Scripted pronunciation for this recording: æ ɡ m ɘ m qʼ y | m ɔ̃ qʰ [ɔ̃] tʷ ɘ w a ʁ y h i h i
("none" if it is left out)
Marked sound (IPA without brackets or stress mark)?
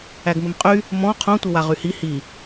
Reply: õ